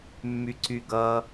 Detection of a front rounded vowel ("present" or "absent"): present